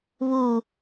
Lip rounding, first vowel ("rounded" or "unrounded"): rounded